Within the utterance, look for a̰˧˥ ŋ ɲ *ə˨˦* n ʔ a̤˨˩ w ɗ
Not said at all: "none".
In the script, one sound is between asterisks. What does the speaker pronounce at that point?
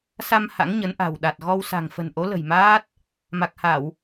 ə˨˦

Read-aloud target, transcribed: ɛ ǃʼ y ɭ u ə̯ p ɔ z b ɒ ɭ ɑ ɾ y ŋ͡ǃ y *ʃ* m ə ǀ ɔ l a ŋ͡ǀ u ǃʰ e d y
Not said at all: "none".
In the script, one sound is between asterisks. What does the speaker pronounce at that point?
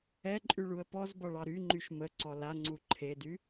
ʃ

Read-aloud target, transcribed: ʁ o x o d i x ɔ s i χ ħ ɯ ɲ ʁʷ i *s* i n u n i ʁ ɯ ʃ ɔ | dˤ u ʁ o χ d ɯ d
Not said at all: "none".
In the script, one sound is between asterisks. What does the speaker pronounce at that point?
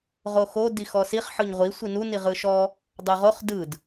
sʷ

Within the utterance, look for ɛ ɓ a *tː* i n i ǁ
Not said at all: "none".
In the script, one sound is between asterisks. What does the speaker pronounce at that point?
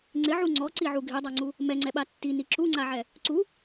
tː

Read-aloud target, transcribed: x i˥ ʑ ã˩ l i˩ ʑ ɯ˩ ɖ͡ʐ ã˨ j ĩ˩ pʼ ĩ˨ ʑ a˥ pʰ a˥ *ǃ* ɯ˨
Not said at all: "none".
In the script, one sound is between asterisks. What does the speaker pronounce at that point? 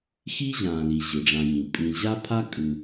kʼ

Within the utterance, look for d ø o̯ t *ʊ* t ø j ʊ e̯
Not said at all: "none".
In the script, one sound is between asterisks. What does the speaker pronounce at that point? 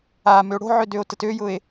ə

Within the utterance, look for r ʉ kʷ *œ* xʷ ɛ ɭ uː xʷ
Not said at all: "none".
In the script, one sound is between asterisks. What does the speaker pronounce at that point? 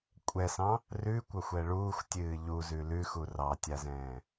œ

